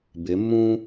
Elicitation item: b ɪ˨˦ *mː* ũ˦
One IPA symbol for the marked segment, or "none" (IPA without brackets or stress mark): mː